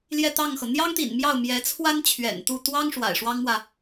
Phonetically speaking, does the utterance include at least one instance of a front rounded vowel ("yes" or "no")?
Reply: no